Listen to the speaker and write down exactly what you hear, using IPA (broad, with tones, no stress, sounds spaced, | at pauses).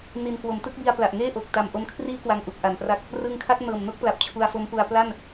n i˨˩ n k w o˩˦ m t ɯ˦˥ k̚ b i˧ a̯ p l a˨˩ ʔ ŋ eː˥˩ ʔ o˨˩ k̚ t a˨˩ m ʔ o˧ m kʰ r iː˦˥ k w a˧ ŋ ʔ u˨˩ k̚ ʔ a˨˩ n p r a˦˥ k̚ | r ɯ˧ ŋ kʰ a˦˥ k̚ n ɤː˨˩ m n o˥˩ k̚ p l a˨˩ p̚ t͡ɕʰ u˧ a̯ f o˦˥ m p u˧ a̯ p l a˥˩ n